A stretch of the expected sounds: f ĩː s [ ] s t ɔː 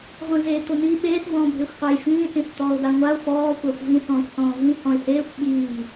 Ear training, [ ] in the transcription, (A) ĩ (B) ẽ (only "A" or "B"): A